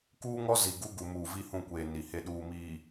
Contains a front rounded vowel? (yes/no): no